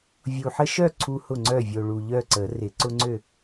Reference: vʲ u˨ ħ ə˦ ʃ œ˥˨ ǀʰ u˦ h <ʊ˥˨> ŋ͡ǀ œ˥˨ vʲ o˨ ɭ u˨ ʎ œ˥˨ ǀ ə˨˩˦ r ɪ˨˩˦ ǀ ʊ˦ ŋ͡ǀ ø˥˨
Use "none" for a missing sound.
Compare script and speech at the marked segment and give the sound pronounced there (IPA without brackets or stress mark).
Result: ʊ˥˨